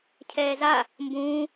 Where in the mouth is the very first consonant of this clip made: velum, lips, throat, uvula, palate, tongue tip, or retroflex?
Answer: palate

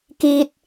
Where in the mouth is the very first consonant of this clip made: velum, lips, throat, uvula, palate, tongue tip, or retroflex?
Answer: velum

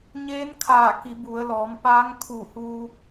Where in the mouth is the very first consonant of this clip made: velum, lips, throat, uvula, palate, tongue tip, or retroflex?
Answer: palate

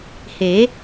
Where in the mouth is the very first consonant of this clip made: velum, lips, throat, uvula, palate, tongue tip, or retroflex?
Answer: throat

